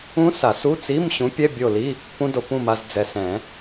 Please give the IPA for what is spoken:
ũ˦˥ s a˨˩˦ s u˧˥˧ t͡s i˧˥˧ m ɕ ũ˨˥ pʲ ɛ˧˥˧ bʲ o˦˨ l i˧˥˧ | p ũ˦˥ d o˨ p ũ˦˨ m a˨ z d͡z ɛ˨ s ɛ̃˨˩˦

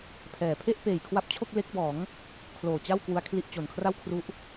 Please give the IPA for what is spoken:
pʰ ɛː˩˦ pʰ e˥˩ ʔ p eː˨˩ j kʰ w a˦˥ p̚ t͡ɕʰ o˥˩ k̚ l e˦˥ k̚ b ɔː˩˦ ŋ | kʰ l oː˨˩ t͡ɕ a˥˩ w k w u˧ a̯ kʰ l i˥˩ ʔ t͡ɕ o˨˩ n kʰ r a˥˩ w kʰ r u˦˥ ʔ

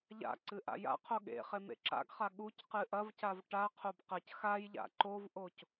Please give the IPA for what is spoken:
ʎ a̰ ǀ ɨ ʔ a̰ j a̰ qʰ o ɠ ḛ χ e m ḛ ǁ a̰ ɡ χ a ɠ u c q ɨ ʔ ɐ v c a v ʈ a qʰ o b q ɐ c x a j ʎ a̰ ǃ o v ʔ o c

